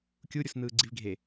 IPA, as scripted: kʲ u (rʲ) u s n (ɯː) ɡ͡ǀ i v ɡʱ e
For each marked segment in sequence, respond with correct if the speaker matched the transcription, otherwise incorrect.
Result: incorrect, correct

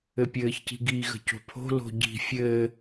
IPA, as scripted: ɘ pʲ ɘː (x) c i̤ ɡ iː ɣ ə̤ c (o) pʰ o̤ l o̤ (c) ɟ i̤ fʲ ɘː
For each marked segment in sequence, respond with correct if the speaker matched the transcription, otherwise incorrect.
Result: incorrect, incorrect, incorrect

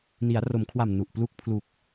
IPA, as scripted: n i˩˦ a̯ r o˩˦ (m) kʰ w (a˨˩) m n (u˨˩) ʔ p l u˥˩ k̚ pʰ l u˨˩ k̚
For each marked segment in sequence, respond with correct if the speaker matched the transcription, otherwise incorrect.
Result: correct, correct, correct

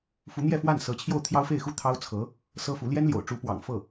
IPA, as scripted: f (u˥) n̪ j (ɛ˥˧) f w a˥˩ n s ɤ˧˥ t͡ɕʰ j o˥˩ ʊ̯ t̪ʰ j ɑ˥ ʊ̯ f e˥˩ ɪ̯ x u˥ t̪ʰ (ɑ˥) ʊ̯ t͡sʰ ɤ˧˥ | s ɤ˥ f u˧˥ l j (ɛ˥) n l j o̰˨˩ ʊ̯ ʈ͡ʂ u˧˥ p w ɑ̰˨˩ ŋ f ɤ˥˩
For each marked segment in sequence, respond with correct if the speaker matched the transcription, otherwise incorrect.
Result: incorrect, correct, correct, correct

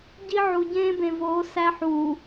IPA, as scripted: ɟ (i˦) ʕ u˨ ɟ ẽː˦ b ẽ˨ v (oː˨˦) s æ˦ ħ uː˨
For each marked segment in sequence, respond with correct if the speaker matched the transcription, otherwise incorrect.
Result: correct, correct

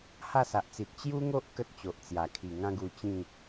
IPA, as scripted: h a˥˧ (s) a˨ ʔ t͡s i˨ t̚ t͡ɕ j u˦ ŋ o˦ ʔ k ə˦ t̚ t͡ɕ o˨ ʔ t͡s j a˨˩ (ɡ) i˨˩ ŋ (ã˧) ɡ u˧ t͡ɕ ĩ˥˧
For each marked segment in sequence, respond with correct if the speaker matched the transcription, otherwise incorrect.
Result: correct, incorrect, incorrect

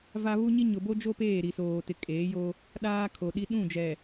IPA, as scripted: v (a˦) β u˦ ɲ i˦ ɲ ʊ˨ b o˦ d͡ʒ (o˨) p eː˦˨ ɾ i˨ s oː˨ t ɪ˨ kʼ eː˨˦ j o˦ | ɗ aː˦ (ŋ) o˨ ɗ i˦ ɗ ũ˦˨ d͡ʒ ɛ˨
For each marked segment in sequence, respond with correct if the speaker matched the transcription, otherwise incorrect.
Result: correct, incorrect, incorrect

